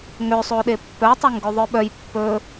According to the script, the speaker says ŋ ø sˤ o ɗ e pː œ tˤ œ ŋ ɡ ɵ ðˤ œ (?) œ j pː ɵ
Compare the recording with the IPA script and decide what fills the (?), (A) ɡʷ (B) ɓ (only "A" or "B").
B